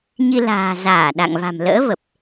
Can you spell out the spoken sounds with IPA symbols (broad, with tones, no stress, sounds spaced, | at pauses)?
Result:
ɲ i˧ l a̤ː˨˩ z aː˧˩ ɗ a̰˧˨ ŋ v a̤˨˩ m l ə̰ː˧˥ v ə˨˩ p̚